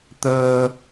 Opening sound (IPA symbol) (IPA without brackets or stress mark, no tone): t̪